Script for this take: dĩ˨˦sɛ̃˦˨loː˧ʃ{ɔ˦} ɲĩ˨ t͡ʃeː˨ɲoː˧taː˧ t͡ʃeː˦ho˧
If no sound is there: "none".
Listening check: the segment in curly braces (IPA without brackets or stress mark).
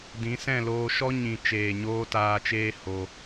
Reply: ɔ˦